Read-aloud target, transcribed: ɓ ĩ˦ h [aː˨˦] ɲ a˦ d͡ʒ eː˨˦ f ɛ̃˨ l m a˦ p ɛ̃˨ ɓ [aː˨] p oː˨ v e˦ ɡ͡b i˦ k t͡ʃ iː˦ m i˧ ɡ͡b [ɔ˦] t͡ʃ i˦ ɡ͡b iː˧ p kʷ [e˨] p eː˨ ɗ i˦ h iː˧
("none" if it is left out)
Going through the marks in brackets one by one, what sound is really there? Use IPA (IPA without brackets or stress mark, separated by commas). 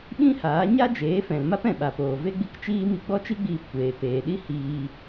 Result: aː˨˦, a˨, ɔ˦, eː˨